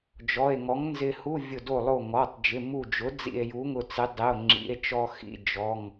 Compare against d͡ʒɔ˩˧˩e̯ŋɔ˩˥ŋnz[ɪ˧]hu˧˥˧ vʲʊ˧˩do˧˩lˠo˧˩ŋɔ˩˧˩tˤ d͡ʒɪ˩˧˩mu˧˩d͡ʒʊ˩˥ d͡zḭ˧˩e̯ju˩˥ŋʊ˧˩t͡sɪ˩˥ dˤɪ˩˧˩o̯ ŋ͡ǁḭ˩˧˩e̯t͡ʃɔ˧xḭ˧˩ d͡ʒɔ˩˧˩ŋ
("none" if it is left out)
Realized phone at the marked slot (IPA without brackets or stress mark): ɪ˧